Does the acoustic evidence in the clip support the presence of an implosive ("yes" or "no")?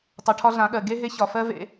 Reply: yes